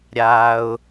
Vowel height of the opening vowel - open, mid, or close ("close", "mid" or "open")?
open